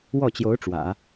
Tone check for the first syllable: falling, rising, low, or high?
falling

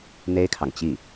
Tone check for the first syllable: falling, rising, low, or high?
high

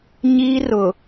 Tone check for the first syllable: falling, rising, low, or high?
high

